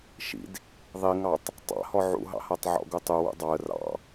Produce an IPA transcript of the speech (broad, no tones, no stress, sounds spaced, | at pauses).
ʃ ḭ d | ðˤ i ŋ ɑ tˤ | tˤ ɑ̰ h ɔ ʕ ṵ ɦ ɑ̰ h a tˤ ʕ ɔ̰ ɡ u tˤ u w ṵ dˤ ɑ ə̯ r ɑ̰